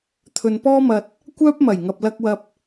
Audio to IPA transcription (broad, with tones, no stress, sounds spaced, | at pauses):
t̪ʰ ɵ˨ n p ɔː˥ m ɐ˧ t̚ | kʷ œː˧ p̚ m ɐ˨˩ j ŋ ɐ˨ p̚ l ɐ˧ k̚ w ɐ˧ p̚